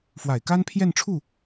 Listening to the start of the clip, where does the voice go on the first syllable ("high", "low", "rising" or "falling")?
low